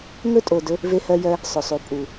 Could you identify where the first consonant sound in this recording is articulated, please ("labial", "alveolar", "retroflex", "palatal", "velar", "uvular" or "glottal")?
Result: velar